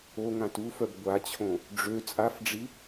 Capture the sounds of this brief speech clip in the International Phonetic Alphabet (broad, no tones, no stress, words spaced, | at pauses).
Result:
o ŋãtufœb ɡʷat͡ɕʰõ | ɖ͡ʐø t͡sʼafɖ͡ʐi